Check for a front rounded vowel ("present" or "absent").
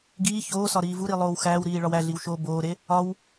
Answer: absent